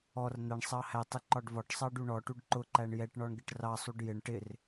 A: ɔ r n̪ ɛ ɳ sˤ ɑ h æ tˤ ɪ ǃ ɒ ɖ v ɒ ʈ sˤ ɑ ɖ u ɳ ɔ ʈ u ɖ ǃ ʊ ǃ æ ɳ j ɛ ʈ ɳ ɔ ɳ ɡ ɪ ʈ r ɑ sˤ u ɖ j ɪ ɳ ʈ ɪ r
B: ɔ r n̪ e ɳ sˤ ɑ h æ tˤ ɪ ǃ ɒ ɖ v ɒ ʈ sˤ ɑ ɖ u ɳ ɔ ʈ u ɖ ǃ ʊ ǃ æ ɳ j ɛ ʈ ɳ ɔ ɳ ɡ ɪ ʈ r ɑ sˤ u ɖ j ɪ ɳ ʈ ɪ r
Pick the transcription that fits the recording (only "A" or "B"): A